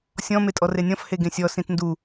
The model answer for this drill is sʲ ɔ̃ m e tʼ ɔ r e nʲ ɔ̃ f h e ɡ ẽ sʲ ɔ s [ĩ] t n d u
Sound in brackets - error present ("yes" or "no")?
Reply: no